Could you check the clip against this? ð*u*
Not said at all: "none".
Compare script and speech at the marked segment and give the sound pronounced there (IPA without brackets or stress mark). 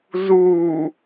u